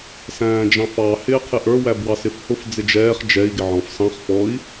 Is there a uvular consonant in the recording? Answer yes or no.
yes